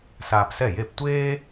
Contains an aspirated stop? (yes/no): no